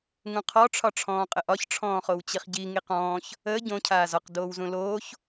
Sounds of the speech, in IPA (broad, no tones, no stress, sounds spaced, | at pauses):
ŋ ũ qʰ ɔ ʈ͡ʂʰ ɒ ʈ͡ʂʰ ɔ̃ː qʼ ə ʔ ɒ ç ʈ͡ʂʰ ɔ̃ː χ o w t͡ɕ i χ ɟ i ŋ i q ɔ̃ː ç | əː ɟ õ cʰ aː z ɒ q d oː w z ũ l oː ç